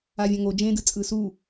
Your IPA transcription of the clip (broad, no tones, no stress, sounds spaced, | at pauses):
a vʲ ã ŋ o d͡ʒ ẽ d ɯ t͡sʼ ɯ s u